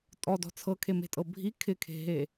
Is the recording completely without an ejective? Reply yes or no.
no